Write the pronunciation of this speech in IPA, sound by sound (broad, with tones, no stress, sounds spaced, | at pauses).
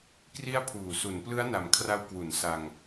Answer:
k r i˦˥ a̯ pʰ uː˨˩ s u˩˦ n p l ɯ˦˥ a̯ n a˨˩ m kʰ r a˧ w k w u˩˦ n s a˧ ŋ